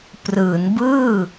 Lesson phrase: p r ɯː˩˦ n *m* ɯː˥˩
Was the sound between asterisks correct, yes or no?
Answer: no